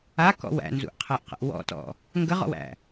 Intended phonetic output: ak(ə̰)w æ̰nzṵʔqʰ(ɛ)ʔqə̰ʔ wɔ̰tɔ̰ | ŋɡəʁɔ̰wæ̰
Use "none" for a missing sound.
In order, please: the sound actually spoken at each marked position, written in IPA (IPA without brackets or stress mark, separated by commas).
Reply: ɔ̰, ɛ